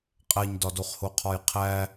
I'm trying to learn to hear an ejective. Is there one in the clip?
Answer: yes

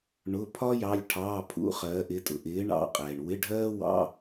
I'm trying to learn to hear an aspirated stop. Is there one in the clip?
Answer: yes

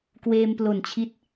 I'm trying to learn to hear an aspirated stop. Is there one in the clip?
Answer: yes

